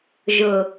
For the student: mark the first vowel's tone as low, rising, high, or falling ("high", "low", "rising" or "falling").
low